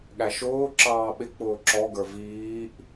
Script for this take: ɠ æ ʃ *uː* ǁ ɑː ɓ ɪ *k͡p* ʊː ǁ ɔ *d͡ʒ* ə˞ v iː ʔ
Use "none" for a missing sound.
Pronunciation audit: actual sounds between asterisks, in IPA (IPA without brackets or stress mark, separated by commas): ʊː, k͡p, ɡ